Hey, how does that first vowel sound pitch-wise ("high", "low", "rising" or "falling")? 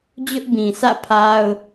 high